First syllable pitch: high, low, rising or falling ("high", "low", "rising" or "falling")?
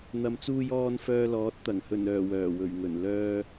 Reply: low